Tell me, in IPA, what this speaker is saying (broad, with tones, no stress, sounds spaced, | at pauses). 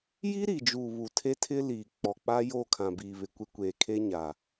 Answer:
j i˦ ɾ i˨ d͡ʒ uː˨ β u˨ tʰ e˦ tʰ ɪ˦ l iː˨ k͡p ɔ˨ k͡p a˦ j o˦˨ kʰ ã˨ b iː˨ β ɪ˨ kʷ ɪ˦ kʷ eː˨ kʰ e˦ ɲ aː˨